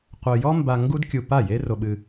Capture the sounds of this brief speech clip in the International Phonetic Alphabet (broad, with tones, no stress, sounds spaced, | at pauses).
qʷ œ˧ j ɔ˥ m b a˧ ŋ ɡ u˥ d kʲ u˧ p a˥˩ j e˥ r o˧ ɓ ɨ˧